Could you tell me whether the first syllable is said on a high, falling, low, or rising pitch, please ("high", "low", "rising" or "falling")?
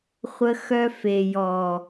high